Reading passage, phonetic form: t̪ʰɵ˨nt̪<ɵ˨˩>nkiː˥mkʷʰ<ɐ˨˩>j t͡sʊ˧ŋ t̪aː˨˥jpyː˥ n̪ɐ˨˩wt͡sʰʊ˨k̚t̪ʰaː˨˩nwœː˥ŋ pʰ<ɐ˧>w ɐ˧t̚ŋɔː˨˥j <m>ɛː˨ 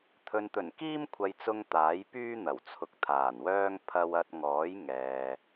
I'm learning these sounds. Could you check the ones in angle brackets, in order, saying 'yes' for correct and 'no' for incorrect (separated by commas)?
yes, no, yes, no